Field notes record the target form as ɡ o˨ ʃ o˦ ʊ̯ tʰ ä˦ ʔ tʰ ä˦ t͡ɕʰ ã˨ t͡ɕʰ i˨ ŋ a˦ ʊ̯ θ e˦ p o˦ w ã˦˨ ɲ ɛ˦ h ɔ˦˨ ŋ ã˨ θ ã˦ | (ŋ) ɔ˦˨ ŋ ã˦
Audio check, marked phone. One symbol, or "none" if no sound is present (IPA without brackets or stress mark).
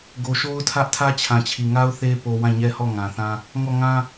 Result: ŋ